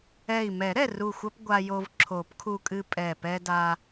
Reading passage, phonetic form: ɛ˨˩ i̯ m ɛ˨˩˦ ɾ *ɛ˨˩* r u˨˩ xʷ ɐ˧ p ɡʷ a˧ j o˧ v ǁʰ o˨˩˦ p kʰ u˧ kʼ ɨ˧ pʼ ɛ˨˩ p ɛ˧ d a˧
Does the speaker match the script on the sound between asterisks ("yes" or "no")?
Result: yes